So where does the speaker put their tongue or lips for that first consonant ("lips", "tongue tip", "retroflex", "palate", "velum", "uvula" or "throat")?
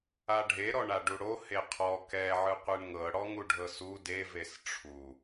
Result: retroflex